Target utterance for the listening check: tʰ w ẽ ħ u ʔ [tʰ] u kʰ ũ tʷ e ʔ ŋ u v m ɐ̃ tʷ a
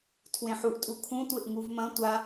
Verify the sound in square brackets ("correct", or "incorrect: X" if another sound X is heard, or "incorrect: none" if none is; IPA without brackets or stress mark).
incorrect: tʼ